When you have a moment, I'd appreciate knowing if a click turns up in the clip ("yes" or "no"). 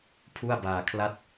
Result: no